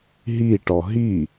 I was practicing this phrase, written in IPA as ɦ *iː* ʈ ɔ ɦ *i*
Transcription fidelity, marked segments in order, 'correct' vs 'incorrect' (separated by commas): incorrect, correct